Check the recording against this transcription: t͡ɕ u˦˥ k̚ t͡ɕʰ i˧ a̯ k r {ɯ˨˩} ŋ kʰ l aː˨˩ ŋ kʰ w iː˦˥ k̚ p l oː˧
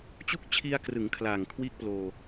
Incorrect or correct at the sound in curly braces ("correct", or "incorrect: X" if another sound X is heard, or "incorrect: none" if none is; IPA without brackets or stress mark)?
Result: incorrect: ɯ˩˦